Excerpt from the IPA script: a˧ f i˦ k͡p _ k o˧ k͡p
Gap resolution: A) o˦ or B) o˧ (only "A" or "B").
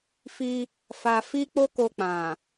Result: A